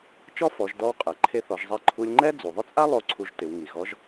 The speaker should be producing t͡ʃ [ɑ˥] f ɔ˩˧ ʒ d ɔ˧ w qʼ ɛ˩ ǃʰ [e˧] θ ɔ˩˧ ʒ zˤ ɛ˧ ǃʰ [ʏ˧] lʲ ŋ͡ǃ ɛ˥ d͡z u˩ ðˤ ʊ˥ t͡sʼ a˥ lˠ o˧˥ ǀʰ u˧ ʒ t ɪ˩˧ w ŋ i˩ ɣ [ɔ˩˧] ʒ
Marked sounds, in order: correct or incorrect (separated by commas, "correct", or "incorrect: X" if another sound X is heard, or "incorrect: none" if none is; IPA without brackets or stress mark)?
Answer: incorrect: ɔ˥, correct, incorrect: u˧, incorrect: ɔ˧˥